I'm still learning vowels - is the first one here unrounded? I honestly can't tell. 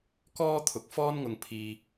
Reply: no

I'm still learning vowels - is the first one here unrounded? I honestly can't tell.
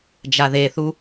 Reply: yes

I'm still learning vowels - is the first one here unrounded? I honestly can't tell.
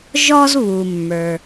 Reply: no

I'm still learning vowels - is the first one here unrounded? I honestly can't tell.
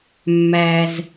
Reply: yes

